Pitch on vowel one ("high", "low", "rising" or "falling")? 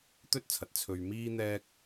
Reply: high